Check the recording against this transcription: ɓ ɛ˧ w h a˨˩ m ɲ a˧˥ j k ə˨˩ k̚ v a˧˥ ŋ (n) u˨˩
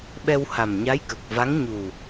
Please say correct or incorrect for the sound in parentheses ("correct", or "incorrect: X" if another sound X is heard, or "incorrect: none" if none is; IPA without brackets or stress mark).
incorrect: ɲ